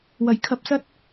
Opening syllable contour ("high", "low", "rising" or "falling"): low